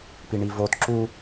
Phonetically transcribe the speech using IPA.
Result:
piɳivot ǁu

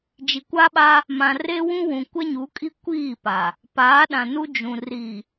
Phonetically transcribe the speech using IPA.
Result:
d͡ʒi˨kʷa˦ɓa˦ | mã˨ re˦wũ˦wũ˨ kʷɛ˦ɲu˨˦kʼi˦ kʷiː˦˨pa˨ | paː˨˦ɗã˨nu˦ d͡ʒũ˨ ri˨

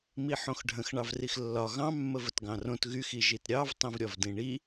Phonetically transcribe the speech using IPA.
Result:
miħõxɖʱə̃x ɳɑvrixlːɒ ɣɑ̃ mːəvətɡɑ̃rõt ɣyx iʒitɾʲɑv tˤĩvɾʲɒvdĩɳi

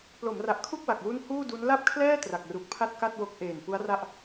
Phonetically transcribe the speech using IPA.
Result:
plo˩˦mra˨˩ʔkʰu˥˩k̚ wa˨˩k̚wu˥˩n huː˥˩du˦˥n la˥˩p̚kʰlɛː˥˩ tra˨˩k̚ru˨˩k̚pʰa˥˩t̚ka˥˩t̚ wo˦˥k̚ʔeː˨˩n pu˦˥a̯ra˥˩ʔ

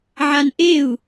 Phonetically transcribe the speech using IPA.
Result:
ʕanʔeu̯

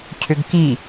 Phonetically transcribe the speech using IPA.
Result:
cʰʏɡki

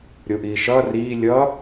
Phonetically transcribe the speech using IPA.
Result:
ɾʲoʔiːʃʌː riː lʲʌ

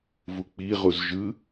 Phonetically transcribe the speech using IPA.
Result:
vuk͡piʁuz ʒɯ

